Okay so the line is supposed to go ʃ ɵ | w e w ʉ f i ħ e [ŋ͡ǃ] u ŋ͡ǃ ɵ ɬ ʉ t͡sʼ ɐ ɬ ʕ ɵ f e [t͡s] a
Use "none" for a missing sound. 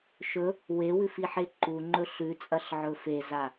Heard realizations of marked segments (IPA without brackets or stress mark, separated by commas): ǃ, z